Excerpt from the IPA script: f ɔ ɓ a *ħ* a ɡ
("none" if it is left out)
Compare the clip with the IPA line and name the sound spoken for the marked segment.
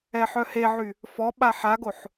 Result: ħ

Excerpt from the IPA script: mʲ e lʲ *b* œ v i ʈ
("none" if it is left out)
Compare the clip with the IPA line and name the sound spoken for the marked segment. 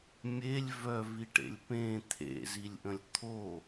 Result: v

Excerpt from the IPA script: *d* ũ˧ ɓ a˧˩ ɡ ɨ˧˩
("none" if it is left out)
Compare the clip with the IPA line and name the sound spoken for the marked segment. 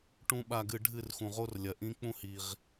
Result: ʈ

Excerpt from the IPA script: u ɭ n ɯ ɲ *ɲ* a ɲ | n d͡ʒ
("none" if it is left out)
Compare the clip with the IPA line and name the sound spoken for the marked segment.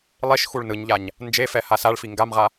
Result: ʎ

